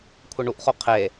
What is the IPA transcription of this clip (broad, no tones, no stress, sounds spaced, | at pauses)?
kʷʰ ɪ ɳ u ʔ χ o qʰ e